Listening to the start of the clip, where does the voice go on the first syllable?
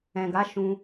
low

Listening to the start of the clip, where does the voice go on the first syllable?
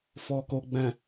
low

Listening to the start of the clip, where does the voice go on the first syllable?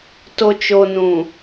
low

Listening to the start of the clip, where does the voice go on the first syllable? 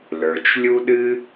low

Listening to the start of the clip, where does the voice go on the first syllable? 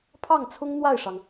falling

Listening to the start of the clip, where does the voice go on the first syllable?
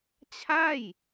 falling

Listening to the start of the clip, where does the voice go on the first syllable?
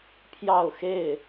falling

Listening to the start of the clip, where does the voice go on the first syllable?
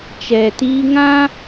low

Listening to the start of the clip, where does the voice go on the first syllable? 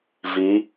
rising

